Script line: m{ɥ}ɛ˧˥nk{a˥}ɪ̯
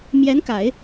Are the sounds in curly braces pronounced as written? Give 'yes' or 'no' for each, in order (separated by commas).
no, no